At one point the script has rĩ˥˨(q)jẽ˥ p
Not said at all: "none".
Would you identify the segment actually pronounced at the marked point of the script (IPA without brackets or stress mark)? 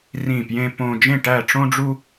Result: p